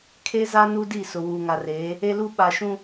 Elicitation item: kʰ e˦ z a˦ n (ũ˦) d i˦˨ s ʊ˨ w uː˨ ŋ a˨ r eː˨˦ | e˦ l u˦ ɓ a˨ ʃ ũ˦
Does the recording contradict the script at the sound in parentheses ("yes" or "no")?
yes